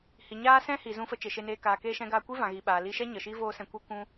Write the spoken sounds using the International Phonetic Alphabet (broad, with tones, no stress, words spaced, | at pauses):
hi˨ɲaː˦sɛ̃˦hi˨ zũ˧fə˧ t͡ʃe˨ʃe˧neː˧ kaː˨keː˧ʃɛ̃˧ɡaː˧ kʷi˦vã˨ɣi˨ ɓaː˨li˧ʃɛ˦ ɲə˨ʃi˦ voː˦sɛ̃˧kʷe˦ kʷũ˧